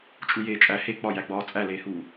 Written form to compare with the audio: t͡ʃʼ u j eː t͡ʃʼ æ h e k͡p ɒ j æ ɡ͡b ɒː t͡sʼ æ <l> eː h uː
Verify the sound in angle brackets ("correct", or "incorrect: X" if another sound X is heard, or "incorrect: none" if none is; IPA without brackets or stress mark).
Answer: correct